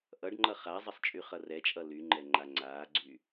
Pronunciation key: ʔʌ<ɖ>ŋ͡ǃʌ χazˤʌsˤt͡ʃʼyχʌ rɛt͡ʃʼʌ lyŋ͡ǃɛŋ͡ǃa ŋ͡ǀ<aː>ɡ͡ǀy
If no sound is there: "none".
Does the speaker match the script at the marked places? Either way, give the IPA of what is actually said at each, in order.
ɖ, aː

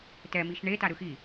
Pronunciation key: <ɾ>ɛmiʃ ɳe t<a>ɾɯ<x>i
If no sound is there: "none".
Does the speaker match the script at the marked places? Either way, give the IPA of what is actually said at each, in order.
t, a, x

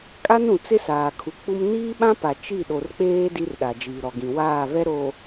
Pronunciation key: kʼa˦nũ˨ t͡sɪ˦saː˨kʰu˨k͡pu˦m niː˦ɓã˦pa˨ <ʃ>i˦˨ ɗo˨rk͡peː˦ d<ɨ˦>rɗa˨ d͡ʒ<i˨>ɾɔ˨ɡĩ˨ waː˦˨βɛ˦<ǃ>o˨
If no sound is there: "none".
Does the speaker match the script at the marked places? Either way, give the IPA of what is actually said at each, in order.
t͡ʃ, i˦, iː˨, ɾ

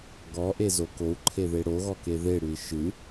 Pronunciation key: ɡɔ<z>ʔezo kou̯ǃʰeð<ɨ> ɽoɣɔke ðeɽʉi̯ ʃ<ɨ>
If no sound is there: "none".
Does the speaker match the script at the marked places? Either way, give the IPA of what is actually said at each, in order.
none, e, ɨ

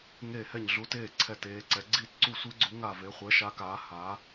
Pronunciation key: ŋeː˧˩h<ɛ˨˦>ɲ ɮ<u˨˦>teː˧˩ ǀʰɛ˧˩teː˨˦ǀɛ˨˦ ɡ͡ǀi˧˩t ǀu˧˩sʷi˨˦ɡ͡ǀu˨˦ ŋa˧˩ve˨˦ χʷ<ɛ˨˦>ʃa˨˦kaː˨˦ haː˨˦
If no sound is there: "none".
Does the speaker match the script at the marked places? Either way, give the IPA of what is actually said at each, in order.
ɛ˧˩, u˨˦, ɛ˨˦

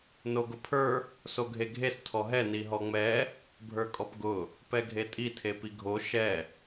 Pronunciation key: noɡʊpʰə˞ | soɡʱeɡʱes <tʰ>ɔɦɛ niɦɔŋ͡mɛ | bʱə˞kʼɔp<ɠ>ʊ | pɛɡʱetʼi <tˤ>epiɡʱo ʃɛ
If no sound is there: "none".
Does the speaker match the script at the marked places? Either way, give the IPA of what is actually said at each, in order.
tʰ, ɡ, tʰ

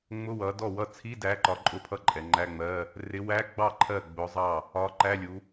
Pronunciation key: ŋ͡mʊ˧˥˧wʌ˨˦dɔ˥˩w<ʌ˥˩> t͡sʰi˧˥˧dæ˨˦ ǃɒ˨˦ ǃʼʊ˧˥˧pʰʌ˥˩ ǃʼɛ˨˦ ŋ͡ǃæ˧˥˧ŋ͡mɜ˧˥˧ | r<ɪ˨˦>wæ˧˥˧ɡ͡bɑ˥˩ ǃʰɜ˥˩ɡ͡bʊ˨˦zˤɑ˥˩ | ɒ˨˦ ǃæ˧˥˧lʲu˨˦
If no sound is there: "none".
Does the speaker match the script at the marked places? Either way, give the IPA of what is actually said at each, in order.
ʌ˥˩, ɪ˨˦

